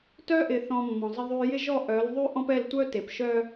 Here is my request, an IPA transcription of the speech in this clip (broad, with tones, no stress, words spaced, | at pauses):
tœ˦ʔɪ˨θɔ̃˨ mːɔ̃˨zˤɪ˦ðˤy˦ jɪ˦ʒɔ˦˨ ʔœ˨˦lðˤy˦ʔɔ̃˦pɛ˦˨l tʷœ˦te˨pʃœ˦